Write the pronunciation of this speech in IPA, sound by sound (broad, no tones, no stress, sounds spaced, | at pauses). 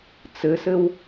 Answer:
t͡s ɘ s ɘ w